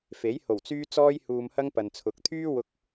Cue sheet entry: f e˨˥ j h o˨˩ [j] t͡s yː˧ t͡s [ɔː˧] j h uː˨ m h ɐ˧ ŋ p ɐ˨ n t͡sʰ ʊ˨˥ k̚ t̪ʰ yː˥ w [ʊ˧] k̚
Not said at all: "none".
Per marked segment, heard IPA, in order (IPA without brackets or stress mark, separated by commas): w, ɔː˧, ʊ˧